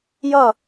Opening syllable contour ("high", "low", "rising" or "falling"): falling